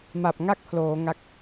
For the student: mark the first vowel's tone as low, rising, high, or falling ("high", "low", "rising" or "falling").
low